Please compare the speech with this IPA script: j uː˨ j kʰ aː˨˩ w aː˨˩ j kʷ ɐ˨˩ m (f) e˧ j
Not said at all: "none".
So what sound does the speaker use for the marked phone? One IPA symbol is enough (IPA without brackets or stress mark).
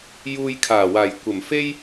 f